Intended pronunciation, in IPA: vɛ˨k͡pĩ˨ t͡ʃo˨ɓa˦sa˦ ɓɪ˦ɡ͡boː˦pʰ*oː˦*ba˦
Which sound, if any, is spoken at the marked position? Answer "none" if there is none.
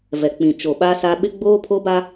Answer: o˦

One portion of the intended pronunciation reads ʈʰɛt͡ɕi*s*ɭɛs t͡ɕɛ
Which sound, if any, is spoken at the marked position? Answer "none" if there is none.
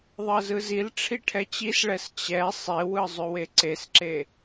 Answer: s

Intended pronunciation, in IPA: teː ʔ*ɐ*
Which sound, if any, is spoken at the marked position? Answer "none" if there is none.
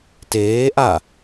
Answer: a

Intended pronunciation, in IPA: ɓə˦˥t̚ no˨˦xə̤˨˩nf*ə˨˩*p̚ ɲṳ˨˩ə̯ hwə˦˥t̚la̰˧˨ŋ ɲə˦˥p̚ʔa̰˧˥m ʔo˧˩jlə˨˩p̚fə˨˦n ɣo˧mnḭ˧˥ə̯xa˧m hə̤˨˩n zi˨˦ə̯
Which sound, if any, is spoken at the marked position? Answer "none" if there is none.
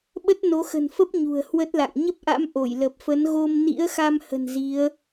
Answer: ə˦˥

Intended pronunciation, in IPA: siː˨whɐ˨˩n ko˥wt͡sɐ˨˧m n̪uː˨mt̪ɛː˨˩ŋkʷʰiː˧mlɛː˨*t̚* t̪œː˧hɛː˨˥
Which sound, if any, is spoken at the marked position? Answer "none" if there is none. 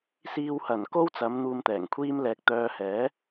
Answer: k̚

